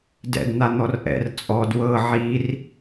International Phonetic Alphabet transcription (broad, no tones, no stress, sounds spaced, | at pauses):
d ɛ̰ d n̪ a n̪ ɔ r ʔ ɛ̰ r t͡sʼ ɔ d w ɤ ʕ i r